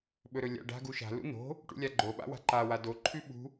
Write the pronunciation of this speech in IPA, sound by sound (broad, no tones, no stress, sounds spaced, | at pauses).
ɓ ɵ ɾ ɵ lʲ a̰ ɖ a̤ ɡ u ʃ a̤ l ṵ n o̤ | ʈ ṵ lʲ a ɡ͡ǃ o ɓ a̰ w a̤ ǃ a w a d o ǃʰ ʉ ɓ ṳ